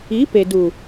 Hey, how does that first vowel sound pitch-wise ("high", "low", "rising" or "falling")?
rising